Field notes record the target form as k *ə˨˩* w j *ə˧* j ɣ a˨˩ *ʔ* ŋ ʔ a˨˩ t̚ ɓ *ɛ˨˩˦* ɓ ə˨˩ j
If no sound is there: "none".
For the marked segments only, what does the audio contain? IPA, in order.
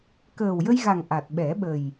əː˨˩, ə˧, none, ɛ˨˩˦

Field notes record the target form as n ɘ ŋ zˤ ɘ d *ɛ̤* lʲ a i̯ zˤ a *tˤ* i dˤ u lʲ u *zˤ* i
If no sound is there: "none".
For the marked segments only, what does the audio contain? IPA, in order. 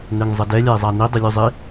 ɛ, n, zˤ

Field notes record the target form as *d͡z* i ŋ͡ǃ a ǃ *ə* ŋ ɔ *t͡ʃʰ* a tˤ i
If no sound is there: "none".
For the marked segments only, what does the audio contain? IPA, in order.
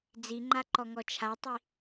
d͡z, ɔ, t͡ʃʰ

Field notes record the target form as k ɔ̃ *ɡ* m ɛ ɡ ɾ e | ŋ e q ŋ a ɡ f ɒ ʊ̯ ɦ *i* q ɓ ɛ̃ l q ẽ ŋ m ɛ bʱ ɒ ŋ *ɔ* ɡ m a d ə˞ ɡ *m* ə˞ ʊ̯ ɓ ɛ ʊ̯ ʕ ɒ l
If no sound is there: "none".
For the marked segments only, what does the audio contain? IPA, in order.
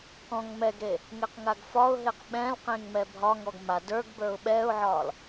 ŋ, e, ɔ, b

